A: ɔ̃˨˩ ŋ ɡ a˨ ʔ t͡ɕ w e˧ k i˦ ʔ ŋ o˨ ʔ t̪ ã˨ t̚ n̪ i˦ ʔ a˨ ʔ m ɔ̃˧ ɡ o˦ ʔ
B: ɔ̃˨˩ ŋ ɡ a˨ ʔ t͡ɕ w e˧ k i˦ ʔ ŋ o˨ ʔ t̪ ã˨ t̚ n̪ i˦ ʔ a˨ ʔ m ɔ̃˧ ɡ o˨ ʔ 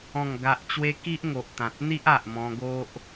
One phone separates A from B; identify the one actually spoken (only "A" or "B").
A